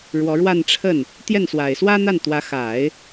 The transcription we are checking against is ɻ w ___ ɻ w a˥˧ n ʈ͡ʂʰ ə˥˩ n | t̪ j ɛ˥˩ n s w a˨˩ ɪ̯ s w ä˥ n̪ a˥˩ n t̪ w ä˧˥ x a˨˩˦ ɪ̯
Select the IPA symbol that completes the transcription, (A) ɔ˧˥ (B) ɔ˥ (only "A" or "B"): A